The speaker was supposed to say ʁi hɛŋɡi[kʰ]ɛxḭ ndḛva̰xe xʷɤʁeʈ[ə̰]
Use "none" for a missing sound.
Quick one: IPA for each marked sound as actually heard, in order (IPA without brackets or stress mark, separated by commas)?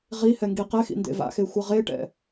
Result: q, ɛ̰